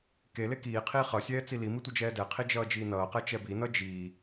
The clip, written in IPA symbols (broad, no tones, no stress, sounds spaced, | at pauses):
k e l e k iː qʰ iː χ ʌ sʲ ɛː t͡s i l i m i tʷ ʌ d͡ʒ ɛː d ɛ qʰ i d͡ʒ ʌː d͡ʒ iː n ʌː q ɛ t͡ʃ ɛ b i n ʌ d͡ʒ iː